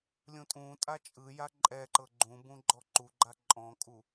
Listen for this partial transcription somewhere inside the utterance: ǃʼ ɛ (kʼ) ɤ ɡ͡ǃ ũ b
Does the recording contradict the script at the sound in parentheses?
yes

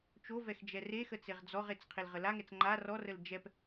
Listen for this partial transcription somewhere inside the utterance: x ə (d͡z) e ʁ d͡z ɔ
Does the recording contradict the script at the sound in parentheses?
yes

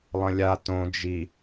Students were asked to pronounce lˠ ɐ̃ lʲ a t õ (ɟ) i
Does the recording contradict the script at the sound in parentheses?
yes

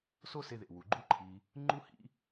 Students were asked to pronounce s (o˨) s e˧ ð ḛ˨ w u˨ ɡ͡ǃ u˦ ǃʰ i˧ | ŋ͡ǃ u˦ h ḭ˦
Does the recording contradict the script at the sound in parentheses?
yes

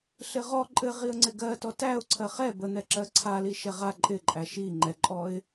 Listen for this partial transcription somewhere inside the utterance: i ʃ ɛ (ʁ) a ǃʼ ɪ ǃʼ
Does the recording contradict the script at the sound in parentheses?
no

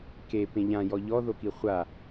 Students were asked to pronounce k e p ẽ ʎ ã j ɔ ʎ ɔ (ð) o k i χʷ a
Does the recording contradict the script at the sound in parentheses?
no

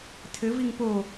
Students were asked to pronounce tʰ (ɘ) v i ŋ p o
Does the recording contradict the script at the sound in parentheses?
no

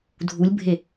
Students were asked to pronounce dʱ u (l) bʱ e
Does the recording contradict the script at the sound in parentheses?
yes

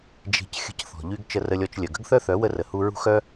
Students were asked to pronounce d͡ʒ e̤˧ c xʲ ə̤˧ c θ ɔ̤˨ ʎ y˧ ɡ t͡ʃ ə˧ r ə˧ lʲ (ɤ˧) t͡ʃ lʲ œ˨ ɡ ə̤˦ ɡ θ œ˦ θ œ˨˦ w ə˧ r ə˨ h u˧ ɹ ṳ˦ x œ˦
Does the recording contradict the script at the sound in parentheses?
yes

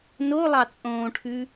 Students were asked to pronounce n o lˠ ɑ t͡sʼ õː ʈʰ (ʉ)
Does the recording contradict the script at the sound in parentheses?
no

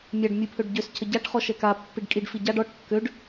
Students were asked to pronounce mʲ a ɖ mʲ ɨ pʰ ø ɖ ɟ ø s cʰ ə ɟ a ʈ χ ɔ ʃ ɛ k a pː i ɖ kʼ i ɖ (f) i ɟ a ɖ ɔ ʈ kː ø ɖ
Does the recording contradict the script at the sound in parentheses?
no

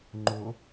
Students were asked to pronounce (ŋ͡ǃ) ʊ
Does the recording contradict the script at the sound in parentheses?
no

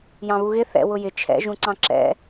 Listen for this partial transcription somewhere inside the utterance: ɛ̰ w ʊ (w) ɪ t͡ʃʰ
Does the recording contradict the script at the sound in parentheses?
yes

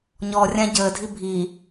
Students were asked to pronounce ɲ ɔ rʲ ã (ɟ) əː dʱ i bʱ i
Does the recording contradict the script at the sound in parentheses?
no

